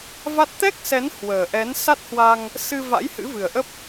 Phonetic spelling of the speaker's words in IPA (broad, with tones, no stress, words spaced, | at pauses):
va˦˥t̚ t̪ɛ˦˥k̚sɛ˨˦n hwəː˨˩ʔɛ˨˦n sa˦˥t̚hwa˧ŋ | sɨ˧va̰˧˥j hɨ̰˧˥vɨ˨˩ə̯ʔə˦˥p̚